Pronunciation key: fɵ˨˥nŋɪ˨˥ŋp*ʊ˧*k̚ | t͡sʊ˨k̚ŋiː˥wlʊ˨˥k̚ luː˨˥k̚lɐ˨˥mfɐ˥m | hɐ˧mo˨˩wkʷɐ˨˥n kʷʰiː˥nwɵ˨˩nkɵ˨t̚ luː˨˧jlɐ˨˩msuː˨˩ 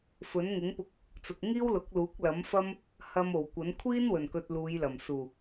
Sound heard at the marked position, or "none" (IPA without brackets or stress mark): ʊ˧